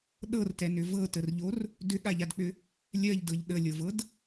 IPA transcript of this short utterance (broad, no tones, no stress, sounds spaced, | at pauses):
ɗ ɤ r t ɛ n ʏ v ɤ t ə r ʎ o r | d ʏ ɠ a ʎ a d k͡p ʏ | lʲ ɜ ʎ d ɤ ʎ ɗ ə lʲ ɤ v ɤ d